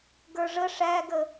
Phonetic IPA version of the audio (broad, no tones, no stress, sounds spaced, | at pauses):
ɡ ə˞ ʐ ə ʂ æ ɡ ə